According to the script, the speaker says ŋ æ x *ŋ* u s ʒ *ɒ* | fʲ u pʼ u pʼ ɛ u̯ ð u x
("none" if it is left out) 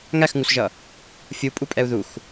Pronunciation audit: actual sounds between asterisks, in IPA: ŋ, ʌ

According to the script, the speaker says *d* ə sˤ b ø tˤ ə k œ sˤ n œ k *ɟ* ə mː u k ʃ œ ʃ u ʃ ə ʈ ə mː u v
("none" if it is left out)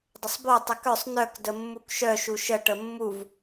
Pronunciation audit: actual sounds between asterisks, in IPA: dˤ, d

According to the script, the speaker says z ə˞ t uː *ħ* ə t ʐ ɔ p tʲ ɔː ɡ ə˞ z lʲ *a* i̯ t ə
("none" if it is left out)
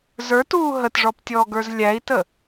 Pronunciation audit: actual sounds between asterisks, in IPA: ɦ, æ

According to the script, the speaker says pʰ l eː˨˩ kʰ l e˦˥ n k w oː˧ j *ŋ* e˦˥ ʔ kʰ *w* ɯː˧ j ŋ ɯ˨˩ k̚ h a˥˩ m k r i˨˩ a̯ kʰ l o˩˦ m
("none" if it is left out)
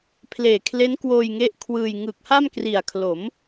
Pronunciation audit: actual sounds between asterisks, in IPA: ŋ, w

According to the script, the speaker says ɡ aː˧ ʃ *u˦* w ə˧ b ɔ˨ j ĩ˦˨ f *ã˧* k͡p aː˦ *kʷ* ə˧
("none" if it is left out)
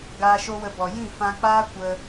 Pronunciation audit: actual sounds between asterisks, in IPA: o˦, ã˧, kʷ

